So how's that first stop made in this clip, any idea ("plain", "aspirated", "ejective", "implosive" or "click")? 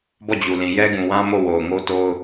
plain